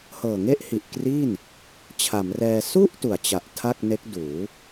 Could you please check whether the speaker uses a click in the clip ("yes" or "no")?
no